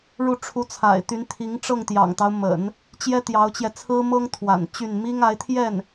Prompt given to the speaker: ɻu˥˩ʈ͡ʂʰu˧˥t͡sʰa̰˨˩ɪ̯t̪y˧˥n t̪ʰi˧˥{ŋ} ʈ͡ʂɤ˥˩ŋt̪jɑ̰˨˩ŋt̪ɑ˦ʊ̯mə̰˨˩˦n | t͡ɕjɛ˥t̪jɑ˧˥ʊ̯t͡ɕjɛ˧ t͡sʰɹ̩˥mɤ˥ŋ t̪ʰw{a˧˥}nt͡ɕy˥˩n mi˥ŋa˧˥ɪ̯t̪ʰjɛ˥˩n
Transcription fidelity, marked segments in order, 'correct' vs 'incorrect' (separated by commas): correct, incorrect